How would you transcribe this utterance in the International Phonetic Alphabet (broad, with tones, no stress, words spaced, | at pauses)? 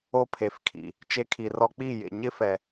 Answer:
o˦pʰe˨fkʰḭ˨ | t͡ʃe˧kʰi˨rɔ˧k͡pi˦˨ jḛ˨ ɲɪ˦fɛ˨